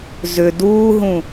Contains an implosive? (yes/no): no